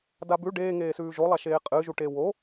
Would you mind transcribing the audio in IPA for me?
dabʉ ɖeːŋeːsʉː ʒolˠaʃeː qʼɨʒuʈe wo

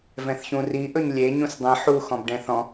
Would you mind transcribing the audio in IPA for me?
vɛ̃θçũriʔɵɲ lʲe ɲũsdˤĩ ħu xɔ̃bɖɛ̃θɔ̃

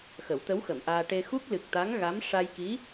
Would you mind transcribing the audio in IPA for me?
xə˨˩˦wt̪ə˧˥wxə˨˩˨mʔaː˧ ʈe˧ xu˦˥k̚lɨ˨˩k̚t̪a˧˥ŋɣa˧˥m ʂa˧jki˧˥

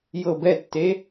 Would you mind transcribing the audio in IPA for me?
jɤ bɛtːe

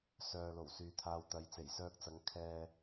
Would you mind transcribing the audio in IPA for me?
sœː˨lo˨˩w syː˨˧t̪ʰaː˧wt̪ɐ˨˧j t͡se˨˩jsœː˧k̚t͡sɐ˨˧ŋ kʰɛː˨

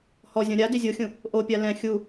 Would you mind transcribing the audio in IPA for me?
hɔzʲɔ̃ ɾʲa dizʲoxʲũ | ʔopʲa lɛ̃ xʲu

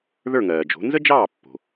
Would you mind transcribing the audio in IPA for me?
ðə˞˥˩ŋɜː˩d͡ʒo̤˩˥ nzə˥d͡ʒɑː˥˩ pːo̤˩

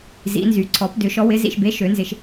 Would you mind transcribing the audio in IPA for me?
zḭ˨˩˦nzy˨˩˦ ǀʰɔ˨˩˦pdʏ˨˩˦ʃɔ˨˦wɪ˨˦ zḭ˨ʃbe˨˦ ʃø˨˩˦nzɪ˨ʃ

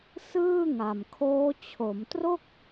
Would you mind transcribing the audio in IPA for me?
sɯː˥˩ŋa˨˩mkʰoː˦˥ t͡ɕʰo˩˦mtro˥˩k̚

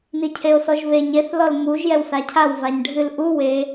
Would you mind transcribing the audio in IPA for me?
nicʰeo̯sɔʒveɲ eθ lɔlmuʒ jɛwsacʰaw vaɲɖʱɨl ʔu we

